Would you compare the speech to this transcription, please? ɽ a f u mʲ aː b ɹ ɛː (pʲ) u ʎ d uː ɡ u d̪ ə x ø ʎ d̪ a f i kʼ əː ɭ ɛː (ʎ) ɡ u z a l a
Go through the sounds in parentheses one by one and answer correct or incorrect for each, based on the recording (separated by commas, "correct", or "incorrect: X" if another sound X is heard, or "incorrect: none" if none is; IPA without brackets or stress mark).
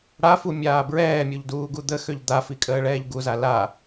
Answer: incorrect: mʲ, correct